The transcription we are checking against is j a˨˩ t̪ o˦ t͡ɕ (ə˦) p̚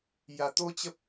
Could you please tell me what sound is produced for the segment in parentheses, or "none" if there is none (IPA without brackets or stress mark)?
ə˦